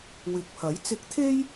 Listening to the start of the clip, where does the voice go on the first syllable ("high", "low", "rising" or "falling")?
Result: low